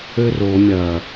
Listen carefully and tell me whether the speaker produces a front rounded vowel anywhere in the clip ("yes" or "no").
yes